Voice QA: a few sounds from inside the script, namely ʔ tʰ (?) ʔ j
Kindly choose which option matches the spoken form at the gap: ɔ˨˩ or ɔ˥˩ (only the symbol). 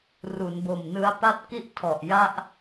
ɔ˨˩